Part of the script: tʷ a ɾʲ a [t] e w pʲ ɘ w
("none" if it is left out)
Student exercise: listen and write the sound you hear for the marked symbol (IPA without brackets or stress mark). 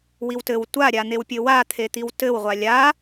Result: n̪